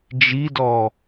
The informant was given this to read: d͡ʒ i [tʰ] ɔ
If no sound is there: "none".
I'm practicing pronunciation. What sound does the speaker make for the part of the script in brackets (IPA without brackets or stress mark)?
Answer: d